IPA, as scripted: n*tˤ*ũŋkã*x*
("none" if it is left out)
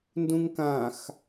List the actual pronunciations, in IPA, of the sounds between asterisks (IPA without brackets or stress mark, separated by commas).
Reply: d, x